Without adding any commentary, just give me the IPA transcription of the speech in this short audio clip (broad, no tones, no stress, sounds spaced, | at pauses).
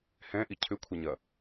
h ɛ̃ ʔ i cʰ ʏ kʷʰ ɐ ɲ ɐ